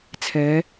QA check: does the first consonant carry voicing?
no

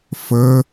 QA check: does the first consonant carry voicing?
no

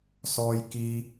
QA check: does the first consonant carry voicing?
no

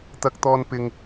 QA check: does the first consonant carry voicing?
no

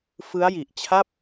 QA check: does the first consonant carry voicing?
no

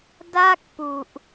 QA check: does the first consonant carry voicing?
yes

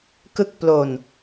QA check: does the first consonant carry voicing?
no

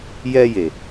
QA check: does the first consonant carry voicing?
yes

